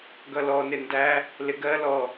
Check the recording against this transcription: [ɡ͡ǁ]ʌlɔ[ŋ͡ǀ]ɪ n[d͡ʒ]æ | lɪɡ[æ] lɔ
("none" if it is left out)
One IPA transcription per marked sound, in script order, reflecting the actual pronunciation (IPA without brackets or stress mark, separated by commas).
ɡ, n, d, ɜ